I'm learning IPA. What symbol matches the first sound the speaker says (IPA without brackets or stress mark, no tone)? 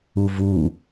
u